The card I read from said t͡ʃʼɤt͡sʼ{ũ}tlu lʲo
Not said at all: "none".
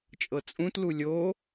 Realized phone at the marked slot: ũ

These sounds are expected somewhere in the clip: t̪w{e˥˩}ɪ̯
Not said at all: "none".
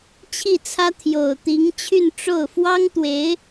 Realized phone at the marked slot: e˧˥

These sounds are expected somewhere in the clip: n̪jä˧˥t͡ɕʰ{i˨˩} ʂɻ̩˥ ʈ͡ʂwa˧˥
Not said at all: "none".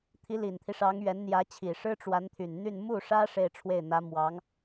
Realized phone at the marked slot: i˨˩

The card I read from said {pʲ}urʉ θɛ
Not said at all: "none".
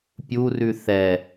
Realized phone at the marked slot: pʲ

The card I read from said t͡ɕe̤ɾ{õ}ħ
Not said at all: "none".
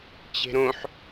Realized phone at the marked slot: õ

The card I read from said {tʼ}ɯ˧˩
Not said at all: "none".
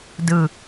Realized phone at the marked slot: d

